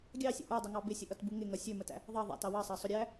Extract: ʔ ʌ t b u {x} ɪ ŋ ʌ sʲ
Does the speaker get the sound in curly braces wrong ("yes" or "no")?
yes